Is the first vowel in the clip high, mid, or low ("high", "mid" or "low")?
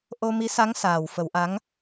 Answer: mid